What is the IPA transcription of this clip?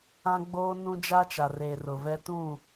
ã˦ɡ͡boː˦ nũ˦d͡ʒa˦t͡ʃa˨reː˨ rʊ˨vɛ˦ tũ˦˨

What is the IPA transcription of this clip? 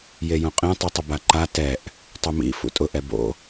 jejõqʼẽ tˤitˤɪbaǃa tɛʔ | tˤʊmḭ fṵtʼʊ ʔɛbo̰

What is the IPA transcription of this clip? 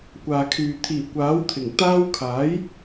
kʷaː˨kʰyː˨ t̪ʰiː˨˩ kʷaː˨˥wt̪ʰɪ˨˩ŋ t̪aː˥w kʰaː˨˥j

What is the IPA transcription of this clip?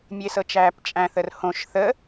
mʲesɤt͡ʃæːpt͡ʃʼæ̃ θərhõʃ θə

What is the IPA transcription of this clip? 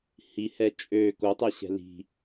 hihɛ t͡ʃʼø kotˤɛɕɛ̤ li̤

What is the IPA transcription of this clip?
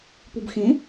pubxẽ

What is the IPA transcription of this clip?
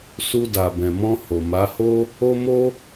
su˧da˨bɛ̃˨mɔ̃˧ ho˨ma˨˦ho˦ | o˦mo˦

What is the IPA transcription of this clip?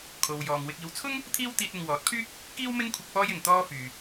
kʰo˨wjɔː˨ŋ wɪ˨k̚iː˨wt͡sʰʊ˥ŋ | t̪ʰiː˥w t̪iː˧t̚ɪ˨ŋwɔː˨˥t̚pʰyː˥k̚ | kiː˥wmɪ˥ŋkʷʰɪ˧k̚ pɔː˥jɪ˨ŋ t̪ɔː˥fyː˨

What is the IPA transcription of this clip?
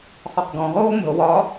χɒqɡɔ̃ ʁoːmə̤o̯ wɒ

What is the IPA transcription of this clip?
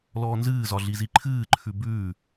lɔːnzɨːzɒ ɮiziǃʰɨːǃʰʉ bʉː

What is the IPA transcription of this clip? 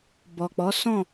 bɔ˨k͡pɔ˨˦sɔ̃˦˨

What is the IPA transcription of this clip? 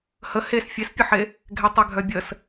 hə hes fʲespʲəħe | ɡʱɛtˤɛɡʱœbʲəs

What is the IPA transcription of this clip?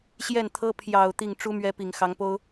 ɕjɛ˥˩nt̪ʰɤ˥ pʰjɑ˨˩ʊ̯ t̪i˥˩ŋ ʈ͡ʂu˥mɥɛ˧˥ pi˨˩ŋ xɑ˧˥ŋpo˥ʊ̯

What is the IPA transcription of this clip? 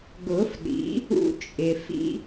ɡʊ˨˩˦f ɗḭ˩˥ | ṵ˦t͡ʃʼɪ˩ fḭ˦

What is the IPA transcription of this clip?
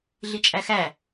ɮit͡ʃʼæxæ

